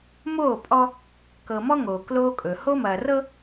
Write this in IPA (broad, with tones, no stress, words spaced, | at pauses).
moː˦˨pʼɔ˦ | kɤ˨mɔ˦ ŋoː˨kloː˦kʼɵ˨ ho˦mɐː˨rɤ˦